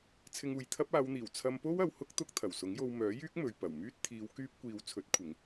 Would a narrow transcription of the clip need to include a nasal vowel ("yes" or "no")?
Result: no